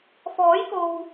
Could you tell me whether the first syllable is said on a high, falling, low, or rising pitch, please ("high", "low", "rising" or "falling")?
rising